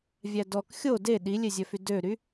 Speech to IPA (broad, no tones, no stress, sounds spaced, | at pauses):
vʲ æ d ɔ k xʲ o d e ɗ i lʲ e zʲ œ f y d ø ɾ y